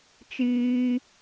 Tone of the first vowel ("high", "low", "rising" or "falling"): high